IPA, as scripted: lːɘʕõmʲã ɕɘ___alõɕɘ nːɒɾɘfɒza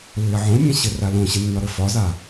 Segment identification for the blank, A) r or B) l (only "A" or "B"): A